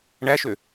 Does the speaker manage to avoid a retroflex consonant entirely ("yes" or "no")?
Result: no